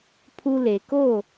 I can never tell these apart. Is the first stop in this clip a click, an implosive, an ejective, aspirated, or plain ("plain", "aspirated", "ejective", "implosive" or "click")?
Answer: aspirated